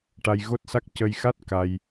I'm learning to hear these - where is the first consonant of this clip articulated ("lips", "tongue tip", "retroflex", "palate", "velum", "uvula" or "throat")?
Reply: retroflex